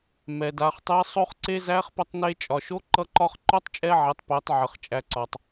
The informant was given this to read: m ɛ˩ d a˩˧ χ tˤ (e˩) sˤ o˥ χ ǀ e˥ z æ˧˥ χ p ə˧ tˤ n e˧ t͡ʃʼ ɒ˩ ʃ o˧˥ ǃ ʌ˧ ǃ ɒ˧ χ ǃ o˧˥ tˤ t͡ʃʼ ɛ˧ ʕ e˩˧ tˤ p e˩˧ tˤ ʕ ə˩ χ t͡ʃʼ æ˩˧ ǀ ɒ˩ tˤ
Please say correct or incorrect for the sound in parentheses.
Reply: incorrect